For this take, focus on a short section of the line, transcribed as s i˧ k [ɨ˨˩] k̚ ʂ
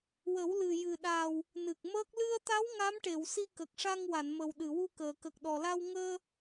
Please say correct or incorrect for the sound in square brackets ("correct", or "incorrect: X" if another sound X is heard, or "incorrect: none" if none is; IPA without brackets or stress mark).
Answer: incorrect: ə˨˩